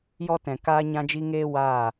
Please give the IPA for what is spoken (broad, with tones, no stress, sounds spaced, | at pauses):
j ɔ˧ t ɛ̃˨ k aː˧ ɲ ã˧ d͡ʒ i˧ ŋ eː˦ w aː˦˨